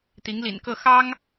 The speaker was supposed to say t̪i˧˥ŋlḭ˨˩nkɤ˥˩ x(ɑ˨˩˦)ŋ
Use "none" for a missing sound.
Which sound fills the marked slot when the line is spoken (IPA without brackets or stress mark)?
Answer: ɑ˥